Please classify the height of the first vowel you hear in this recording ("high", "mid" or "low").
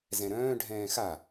mid